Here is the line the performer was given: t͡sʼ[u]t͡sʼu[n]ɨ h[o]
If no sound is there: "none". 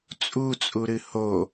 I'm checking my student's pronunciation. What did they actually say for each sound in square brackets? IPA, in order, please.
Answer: u, ɾ, o

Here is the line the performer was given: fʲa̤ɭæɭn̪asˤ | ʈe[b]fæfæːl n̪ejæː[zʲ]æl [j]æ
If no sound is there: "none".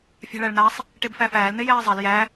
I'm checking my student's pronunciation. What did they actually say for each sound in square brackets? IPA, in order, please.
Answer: b, zˤ, j

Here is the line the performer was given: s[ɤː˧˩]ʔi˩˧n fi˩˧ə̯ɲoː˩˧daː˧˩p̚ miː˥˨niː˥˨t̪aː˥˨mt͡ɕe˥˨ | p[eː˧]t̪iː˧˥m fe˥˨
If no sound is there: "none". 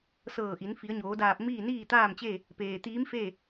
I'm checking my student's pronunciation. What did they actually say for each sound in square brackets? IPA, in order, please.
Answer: ɤː˧˩, eː˩

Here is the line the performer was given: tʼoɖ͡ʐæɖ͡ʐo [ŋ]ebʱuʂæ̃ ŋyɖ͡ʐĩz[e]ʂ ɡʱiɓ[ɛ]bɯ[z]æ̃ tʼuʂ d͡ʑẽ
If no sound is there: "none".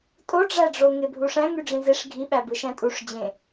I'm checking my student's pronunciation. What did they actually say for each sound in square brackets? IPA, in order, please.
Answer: ŋ, e, æ, ʃ

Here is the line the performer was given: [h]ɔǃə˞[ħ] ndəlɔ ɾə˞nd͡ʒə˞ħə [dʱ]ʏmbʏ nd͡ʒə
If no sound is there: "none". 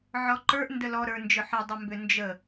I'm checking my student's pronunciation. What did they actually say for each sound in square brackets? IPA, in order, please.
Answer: ʕ, ʔ, dˤ

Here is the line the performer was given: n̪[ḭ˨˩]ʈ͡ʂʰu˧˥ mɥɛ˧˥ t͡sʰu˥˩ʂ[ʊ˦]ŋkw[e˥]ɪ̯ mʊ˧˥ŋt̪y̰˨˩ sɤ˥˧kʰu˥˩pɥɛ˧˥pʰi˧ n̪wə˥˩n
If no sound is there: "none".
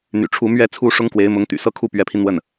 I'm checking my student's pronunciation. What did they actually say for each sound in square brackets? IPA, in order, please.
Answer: y̰˨˩, ʊ˥, e˧˥

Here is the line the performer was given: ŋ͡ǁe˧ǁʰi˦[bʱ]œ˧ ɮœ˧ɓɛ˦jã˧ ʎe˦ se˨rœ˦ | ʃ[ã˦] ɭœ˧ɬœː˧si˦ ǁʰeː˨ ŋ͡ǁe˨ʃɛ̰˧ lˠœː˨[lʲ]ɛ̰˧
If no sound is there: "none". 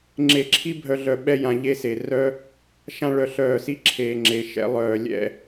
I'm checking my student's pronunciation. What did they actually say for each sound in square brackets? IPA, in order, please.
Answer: bʱ, ã˦, lʲ

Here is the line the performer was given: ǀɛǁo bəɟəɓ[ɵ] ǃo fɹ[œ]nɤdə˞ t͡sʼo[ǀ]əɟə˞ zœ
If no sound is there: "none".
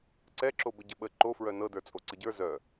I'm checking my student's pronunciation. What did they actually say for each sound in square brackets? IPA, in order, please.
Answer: ə, œ, ǀ

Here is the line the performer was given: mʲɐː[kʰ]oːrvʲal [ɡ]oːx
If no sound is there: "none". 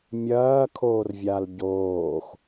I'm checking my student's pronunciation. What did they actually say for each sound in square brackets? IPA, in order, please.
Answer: kʰ, ɟ

